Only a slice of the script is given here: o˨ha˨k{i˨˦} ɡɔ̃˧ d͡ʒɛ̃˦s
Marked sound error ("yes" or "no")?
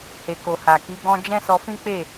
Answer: no